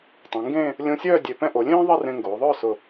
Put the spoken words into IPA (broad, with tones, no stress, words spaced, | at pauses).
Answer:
tˤɛ̃˩˧ŋɡẽː˥˧ | lʲõ˧sʲœː˥˧ dʲe˧˩pɛ̃˥ ʔo˩˧lʲẽː˥ ðˤi˥˧rẽ˧ ŋɡoː˩˧ðˤœː˥˧sʊ˧˩